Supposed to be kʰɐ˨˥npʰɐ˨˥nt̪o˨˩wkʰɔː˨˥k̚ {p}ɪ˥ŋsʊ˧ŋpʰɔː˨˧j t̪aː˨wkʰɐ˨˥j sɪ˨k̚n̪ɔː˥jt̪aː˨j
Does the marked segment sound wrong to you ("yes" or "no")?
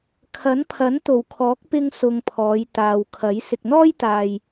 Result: no